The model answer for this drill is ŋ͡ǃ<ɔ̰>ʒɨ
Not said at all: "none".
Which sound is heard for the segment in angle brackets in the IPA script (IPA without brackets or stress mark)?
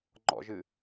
ɔ̰